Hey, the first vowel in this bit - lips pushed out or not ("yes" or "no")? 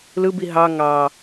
no